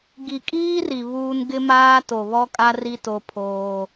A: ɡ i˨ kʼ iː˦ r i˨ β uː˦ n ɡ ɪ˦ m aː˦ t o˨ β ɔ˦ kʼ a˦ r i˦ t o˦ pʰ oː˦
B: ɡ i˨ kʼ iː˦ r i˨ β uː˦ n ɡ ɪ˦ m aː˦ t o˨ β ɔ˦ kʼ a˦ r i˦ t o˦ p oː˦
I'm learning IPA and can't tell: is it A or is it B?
A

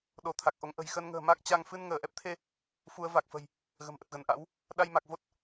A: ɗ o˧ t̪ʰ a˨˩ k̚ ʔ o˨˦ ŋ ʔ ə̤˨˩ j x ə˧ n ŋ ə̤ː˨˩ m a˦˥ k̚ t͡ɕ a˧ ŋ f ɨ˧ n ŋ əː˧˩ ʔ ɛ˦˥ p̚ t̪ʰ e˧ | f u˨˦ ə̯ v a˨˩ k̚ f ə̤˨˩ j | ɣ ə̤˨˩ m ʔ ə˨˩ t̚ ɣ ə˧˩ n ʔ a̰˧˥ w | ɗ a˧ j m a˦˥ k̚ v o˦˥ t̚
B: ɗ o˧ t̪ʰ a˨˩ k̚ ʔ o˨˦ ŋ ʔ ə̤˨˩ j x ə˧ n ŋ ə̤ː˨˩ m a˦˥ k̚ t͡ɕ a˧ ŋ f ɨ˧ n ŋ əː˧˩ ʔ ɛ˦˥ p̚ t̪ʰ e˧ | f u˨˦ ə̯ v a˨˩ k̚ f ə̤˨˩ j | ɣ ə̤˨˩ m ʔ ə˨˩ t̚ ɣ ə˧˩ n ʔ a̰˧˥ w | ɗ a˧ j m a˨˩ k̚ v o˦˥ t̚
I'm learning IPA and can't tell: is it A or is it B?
B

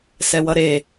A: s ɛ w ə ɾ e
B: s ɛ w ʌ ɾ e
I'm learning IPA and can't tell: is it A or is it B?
B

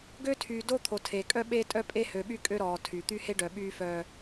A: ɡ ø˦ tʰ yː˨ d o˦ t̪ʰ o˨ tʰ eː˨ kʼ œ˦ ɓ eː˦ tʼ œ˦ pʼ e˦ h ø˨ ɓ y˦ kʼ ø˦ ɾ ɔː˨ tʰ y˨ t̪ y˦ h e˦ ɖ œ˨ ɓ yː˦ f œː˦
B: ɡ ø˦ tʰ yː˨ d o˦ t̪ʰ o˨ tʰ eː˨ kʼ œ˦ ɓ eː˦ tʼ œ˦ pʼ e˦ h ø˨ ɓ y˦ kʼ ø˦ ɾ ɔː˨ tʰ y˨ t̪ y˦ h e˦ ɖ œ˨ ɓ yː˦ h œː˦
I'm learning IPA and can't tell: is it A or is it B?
A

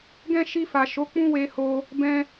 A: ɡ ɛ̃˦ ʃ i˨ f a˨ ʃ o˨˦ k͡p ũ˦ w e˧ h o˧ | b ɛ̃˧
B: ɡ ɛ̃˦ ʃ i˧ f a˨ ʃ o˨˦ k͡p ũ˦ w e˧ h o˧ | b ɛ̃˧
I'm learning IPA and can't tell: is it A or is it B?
B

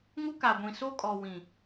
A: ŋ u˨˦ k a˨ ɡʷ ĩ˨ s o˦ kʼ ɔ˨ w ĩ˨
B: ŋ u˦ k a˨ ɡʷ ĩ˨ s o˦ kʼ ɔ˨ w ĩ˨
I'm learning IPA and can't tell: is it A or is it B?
B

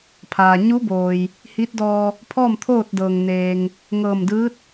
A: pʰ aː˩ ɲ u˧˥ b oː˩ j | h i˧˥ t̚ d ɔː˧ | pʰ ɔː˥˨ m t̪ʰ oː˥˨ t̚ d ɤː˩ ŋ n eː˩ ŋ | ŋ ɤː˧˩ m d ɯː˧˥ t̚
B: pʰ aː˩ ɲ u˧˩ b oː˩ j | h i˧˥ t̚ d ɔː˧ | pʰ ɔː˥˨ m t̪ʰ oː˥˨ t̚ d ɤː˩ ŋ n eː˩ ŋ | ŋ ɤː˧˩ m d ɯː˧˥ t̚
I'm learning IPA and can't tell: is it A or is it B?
A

